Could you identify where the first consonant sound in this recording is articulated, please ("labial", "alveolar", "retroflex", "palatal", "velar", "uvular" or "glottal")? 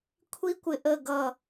velar